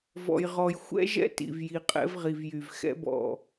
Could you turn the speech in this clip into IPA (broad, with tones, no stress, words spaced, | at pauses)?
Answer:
vɔ̰˨jʁɔ˨j xʷɛ̰˦ʒɛ̰˦ tḭ˨vji˨ qʼɛ̰˦v ʁi˨vjy˨v xɛ̰˦bɔ̰˦˨